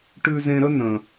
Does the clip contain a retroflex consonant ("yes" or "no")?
yes